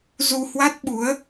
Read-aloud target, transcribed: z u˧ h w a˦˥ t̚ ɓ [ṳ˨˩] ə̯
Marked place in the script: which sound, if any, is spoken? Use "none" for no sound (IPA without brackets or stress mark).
u˨˦